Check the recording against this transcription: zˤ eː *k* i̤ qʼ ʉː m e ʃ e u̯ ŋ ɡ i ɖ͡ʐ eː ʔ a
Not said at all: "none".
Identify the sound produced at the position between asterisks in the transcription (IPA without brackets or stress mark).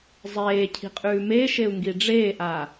cʰ